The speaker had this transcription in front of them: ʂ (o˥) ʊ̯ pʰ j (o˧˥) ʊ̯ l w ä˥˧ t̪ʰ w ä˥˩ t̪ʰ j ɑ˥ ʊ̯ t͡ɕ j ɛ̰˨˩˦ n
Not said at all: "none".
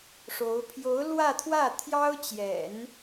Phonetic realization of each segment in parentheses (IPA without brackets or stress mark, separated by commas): o˧˥, o˧˥